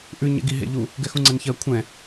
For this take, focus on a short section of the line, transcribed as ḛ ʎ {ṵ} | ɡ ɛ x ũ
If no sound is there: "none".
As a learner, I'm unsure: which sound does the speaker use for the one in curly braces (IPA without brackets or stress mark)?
u